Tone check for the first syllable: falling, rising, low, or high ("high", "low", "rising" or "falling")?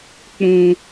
high